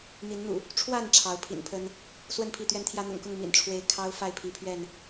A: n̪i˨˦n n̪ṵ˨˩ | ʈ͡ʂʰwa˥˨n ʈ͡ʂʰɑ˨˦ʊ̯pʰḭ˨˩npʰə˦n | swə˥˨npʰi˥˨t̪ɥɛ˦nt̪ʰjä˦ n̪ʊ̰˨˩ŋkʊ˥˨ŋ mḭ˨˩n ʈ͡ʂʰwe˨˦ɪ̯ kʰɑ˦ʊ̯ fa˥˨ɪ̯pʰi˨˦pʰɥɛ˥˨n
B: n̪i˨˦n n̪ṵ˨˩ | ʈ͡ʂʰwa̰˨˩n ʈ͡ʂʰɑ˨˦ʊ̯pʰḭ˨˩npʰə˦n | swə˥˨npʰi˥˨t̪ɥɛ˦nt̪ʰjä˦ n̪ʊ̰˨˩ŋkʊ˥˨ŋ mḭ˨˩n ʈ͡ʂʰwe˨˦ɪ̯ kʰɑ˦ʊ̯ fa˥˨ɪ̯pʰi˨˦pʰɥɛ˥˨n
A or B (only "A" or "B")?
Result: A